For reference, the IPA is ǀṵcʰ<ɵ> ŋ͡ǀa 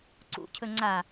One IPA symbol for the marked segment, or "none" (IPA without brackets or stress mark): ɵ